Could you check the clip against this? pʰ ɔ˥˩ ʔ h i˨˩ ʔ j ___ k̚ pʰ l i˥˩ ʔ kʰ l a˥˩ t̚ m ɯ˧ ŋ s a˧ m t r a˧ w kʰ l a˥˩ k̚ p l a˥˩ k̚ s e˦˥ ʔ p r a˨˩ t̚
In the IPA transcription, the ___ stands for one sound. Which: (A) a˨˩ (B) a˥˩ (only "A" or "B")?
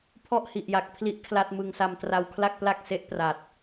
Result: A